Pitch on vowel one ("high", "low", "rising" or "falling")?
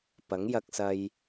rising